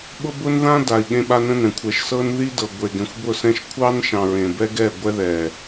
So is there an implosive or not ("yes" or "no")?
yes